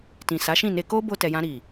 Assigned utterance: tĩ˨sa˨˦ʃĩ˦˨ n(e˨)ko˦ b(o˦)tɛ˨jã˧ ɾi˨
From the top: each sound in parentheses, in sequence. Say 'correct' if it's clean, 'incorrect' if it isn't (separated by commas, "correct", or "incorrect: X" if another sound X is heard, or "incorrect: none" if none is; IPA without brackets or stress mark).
incorrect: e˧, incorrect: o˧